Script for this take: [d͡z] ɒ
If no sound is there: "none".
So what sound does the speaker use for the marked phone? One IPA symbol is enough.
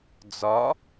d͡z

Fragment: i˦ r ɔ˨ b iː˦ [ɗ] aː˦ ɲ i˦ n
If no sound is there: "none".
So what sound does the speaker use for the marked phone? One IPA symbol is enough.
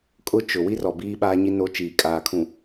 ɓ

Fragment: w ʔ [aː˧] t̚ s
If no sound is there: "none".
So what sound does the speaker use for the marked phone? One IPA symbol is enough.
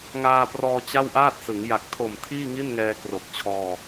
aː˥˩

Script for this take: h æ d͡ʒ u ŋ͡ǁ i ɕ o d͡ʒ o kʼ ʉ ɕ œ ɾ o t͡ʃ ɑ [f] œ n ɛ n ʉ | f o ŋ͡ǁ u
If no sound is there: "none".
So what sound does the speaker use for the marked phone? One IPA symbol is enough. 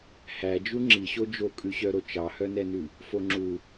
h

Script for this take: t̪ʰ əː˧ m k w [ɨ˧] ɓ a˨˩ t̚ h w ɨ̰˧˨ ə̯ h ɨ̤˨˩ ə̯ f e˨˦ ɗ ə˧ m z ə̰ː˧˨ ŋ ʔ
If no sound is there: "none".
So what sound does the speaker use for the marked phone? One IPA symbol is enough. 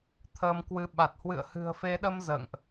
ɨ˧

